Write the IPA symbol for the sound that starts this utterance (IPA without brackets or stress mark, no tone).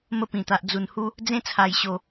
m